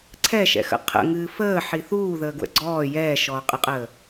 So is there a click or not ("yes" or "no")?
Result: yes